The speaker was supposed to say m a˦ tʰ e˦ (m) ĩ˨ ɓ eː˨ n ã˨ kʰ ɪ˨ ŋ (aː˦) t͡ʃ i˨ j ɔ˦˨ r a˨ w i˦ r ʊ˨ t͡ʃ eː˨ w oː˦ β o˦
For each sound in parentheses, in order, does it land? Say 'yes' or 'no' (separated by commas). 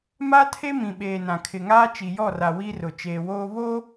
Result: yes, yes